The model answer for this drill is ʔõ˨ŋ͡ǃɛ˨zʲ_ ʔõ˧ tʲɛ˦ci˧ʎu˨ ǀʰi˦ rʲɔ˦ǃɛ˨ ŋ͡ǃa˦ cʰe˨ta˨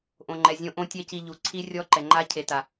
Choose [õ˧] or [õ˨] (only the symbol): õ˧